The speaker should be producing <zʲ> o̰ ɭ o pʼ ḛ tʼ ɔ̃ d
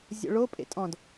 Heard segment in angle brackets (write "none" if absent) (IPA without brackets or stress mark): zʲ